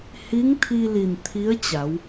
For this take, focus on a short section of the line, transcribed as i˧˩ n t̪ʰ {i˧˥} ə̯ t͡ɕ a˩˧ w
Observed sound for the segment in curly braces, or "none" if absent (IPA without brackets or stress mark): i˧˥